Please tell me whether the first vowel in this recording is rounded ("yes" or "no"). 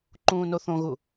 yes